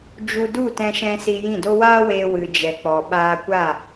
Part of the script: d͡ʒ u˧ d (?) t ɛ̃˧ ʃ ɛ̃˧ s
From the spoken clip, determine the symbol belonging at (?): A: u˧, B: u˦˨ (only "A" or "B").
B